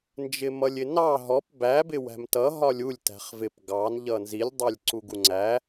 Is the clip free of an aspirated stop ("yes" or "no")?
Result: yes